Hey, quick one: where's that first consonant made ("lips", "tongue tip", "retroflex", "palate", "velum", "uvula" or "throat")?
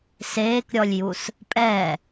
tongue tip